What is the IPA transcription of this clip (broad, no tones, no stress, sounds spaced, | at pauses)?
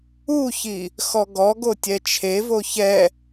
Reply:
u ç i | x ɔ ɡ ɔ ɡ o tʲ ɛ t͡ʃʰ e v o ç ɛ